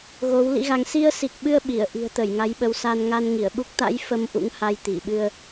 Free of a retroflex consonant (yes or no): yes